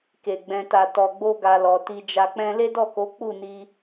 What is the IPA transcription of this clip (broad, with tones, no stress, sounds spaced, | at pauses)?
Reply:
k e˨ ɡ͡b ɛ̃˨ t a˨ t ɔ˨ ɡ͡b o˧ ɡ a˨ l ɔ˨ t i˧ d͡ʒ a˧ k͡p ɛ̃˧ l e˦ d ɔ˦˨ k o˨˦ k͡p u˦˨ n i˧